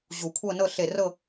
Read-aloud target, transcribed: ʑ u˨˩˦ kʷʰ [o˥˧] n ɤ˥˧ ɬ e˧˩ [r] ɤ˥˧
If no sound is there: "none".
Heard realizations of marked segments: ɤ˥˧, r

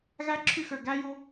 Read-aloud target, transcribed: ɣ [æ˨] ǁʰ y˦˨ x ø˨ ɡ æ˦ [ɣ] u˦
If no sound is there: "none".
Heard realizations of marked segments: æ˦, j

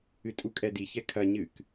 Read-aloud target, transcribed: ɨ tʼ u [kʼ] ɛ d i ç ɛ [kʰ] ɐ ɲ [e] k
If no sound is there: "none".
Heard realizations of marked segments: kʼ, kʰ, ɨ

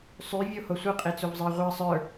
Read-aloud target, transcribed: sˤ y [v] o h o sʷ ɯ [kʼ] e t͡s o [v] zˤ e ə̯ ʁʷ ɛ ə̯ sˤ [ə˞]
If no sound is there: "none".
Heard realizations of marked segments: vʲ, qʼ, v, ə˞

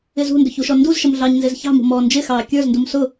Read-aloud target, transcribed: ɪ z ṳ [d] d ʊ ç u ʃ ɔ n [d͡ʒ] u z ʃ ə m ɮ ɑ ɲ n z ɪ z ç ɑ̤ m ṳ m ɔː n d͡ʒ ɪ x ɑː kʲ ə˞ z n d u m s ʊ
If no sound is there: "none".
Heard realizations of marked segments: n, d

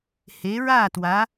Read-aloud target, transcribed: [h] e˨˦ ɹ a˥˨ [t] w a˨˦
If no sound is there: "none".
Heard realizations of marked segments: h, t

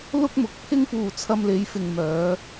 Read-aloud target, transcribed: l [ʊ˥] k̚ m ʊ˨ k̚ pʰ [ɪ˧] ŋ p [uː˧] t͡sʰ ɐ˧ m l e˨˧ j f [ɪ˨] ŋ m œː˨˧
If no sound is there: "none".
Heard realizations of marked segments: ʊ˥, ɪ˥, uː˧, ɪ˨

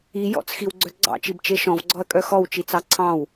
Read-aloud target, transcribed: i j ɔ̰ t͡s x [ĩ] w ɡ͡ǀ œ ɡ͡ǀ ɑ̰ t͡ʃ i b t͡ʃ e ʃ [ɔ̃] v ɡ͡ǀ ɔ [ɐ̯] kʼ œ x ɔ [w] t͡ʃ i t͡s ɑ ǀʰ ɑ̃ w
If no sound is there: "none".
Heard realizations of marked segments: i, ɔ̃, ɐ̯, w

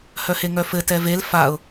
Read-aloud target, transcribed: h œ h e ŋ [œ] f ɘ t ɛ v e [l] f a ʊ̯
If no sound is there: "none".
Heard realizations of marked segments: œ, l

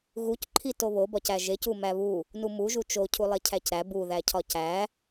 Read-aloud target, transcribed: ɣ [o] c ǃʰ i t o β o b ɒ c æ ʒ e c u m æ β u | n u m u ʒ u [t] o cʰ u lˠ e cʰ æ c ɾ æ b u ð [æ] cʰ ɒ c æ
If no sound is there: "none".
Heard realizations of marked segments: u, t͡ʃ, æ

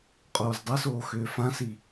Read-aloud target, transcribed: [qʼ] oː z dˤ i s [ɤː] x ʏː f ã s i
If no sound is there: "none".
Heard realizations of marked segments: qʼ, oː

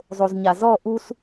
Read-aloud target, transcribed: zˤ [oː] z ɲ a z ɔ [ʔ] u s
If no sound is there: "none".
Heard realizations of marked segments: o, ʔ

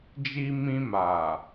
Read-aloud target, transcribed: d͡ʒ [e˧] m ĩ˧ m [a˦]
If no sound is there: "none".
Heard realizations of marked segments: i˧, a˨

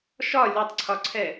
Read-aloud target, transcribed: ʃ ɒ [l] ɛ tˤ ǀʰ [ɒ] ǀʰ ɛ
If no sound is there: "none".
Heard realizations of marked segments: lʲ, ɒ

